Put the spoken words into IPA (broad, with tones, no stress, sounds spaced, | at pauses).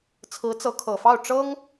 t͡sʰ ɹ̩˧˥ t͡s ɤ˧˥ kʰ ɤ˨˩ f ɑ˥˩ ʊ̯ ʈ͡ʂ ɤ˥ ŋ